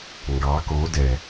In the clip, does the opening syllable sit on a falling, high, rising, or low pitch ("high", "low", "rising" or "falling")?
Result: rising